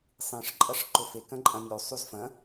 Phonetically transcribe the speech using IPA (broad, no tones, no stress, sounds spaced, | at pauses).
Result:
sˤ ĩ ʂ ǃʼ ɐ ʂ ǃ ʊ f e k ɐ̃ ǃʼ ɐ̃ nʲ u sˤ u z f ɐ̃